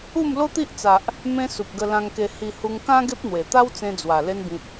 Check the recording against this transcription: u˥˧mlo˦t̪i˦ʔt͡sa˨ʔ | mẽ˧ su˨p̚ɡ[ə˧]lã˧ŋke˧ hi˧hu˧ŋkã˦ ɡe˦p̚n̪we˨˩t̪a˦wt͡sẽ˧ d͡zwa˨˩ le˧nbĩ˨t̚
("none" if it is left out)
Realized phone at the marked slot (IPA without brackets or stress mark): ə˧